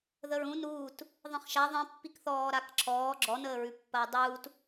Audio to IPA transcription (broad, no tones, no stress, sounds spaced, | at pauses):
ð ə ɹ ũ n uː t | ðˤ ĩ χ ʃ a ðˤ ĩ pː i k θ ɔː ɾ a k ǁʰ ɔː ɡ͡ǁ ɔ n əː ɹ ʉ pː ɐː dˤ uː t